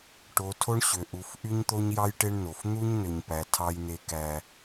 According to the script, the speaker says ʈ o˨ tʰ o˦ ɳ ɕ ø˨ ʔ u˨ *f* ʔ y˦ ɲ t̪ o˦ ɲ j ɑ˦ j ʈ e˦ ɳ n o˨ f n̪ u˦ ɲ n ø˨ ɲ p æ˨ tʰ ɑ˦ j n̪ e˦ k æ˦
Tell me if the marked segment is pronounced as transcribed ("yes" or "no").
yes